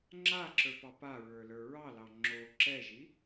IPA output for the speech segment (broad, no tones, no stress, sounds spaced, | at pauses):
ŋ͡ǁ a ǁ ə˞ p ɑ p a ɹ ə˞ l ə˞ ɹ ɑ l ɑ ŋ͡ǁ o ǁ ɛ ʒ i